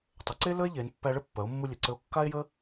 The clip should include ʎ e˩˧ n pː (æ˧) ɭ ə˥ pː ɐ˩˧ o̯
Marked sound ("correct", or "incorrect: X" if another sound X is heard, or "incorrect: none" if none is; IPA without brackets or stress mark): correct